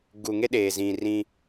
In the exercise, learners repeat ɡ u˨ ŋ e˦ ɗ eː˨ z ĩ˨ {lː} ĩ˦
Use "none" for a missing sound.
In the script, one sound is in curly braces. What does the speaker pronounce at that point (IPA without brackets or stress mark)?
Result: r